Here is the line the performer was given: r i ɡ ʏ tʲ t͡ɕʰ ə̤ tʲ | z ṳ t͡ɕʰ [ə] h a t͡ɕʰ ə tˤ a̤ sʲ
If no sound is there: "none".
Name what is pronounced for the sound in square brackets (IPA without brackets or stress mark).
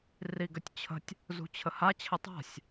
ə